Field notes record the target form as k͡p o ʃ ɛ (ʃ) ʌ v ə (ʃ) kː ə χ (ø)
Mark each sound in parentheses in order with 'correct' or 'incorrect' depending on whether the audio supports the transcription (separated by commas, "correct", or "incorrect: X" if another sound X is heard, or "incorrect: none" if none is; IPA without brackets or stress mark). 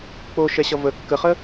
incorrect: ɕ, incorrect: none, incorrect: ə